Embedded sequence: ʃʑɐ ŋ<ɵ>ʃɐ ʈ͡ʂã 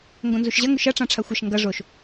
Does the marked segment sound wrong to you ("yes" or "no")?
no